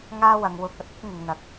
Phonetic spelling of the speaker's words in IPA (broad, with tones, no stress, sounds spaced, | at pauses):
ŋ aː˥ w ɐ˨˧ ŋ w ʊ˧ k̚ ɐ˥ t̚ ɪ˥ k̚ ŋ ɪ˨˧ ŋ n̪ ɐ˨ k̚